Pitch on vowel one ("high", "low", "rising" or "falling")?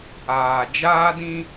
low